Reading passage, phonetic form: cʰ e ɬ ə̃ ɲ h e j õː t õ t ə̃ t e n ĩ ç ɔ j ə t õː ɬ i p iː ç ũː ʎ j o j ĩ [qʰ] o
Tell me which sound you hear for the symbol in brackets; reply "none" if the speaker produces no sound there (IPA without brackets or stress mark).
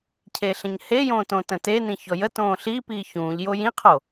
qʰ